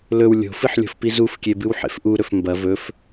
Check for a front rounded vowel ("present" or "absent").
absent